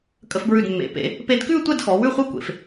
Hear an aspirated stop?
no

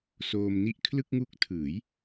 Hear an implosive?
no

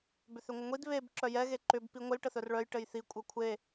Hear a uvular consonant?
no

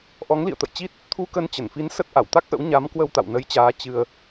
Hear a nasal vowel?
no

